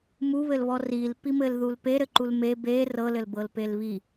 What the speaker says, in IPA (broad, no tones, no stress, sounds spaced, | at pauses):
m u β ɘ l β ɔ r i l p i m ɘ l ð u l p e ɾ ɘ ǃ u l m e b e r ɤ l ɘ l b ɤ l p e l β i